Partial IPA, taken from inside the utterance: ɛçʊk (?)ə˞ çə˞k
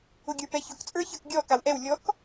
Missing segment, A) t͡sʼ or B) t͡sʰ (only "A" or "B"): A